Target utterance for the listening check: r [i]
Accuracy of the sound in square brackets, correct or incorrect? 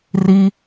correct